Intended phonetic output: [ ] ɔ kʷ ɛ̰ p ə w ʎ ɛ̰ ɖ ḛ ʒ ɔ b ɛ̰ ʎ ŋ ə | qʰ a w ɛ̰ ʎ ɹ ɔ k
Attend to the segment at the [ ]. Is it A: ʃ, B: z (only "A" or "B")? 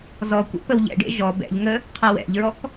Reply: B